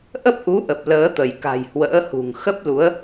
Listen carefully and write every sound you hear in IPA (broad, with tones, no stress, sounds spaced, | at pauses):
ʔ ə˦˥ p̚ ʔ u˨˦ ʔ ə˨˩ p̚ l əː˨˦ t̪ ə˧˩ j k a̤˨˩ j h w ə̰ː˧˥ h ṳ˨˩ ŋ x ə˦˥ p̚ l u˨˦ ə̯